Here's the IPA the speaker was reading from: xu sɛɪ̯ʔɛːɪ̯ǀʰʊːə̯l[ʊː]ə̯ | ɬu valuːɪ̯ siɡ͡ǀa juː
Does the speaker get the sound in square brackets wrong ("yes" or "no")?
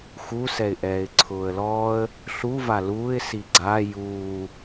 yes